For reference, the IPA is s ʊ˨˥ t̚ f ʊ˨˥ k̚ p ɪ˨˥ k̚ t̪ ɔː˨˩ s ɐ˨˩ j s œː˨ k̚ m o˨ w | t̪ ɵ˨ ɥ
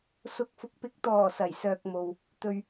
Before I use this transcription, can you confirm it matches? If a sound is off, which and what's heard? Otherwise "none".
t̚ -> k̚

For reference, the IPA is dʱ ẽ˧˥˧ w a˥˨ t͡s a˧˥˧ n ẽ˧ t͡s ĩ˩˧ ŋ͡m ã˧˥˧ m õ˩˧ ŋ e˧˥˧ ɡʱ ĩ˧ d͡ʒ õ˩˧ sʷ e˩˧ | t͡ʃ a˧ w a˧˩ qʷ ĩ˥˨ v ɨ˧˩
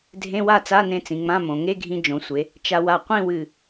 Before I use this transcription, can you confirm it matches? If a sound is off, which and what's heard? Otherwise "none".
v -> w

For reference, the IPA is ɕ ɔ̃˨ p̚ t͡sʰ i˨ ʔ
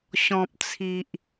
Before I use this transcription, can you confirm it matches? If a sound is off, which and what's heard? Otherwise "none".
none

